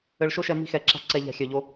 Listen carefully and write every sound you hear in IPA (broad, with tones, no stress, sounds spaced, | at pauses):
ɘ˧ ɭ ʃ o˦ ʃ ɛ˧ m i̤˦ x ɛ˨ ǁ a̤˦ ǀ ɛ˧ ʎ a̤˧ xʲ œ˨ ʎ o˦